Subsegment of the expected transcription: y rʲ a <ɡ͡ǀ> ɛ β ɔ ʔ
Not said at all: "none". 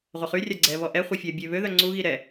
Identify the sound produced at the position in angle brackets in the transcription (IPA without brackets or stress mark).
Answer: ɡ͡ǀ